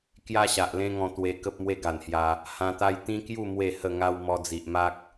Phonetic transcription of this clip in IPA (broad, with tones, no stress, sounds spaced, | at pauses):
k j a˦ ɕ a˨ ʔ l ẽ˦ ŋ ɔ̃˧ t̪ w e˧ k ə˦ p̚ m w e˦ ɡ a˨˩ n h j a˧ | h ã˧ t̪ a˦ j t̪ ĩ˦ k j u˥˧ m w e˥˧ h ə˥˧ ŋ a˦ w m ɔ˧ d͡z i˨ ʔ m a˦ k̚